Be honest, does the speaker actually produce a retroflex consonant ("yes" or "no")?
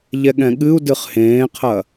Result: no